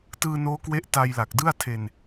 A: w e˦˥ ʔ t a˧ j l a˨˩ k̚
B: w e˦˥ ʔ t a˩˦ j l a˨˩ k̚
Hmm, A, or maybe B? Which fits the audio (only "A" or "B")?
A